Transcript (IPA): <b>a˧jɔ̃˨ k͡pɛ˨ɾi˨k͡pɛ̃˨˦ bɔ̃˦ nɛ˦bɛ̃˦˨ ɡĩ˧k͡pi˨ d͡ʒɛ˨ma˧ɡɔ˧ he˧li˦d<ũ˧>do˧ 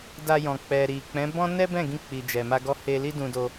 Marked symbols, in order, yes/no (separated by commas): no, yes